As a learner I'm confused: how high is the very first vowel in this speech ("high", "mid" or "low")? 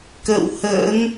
mid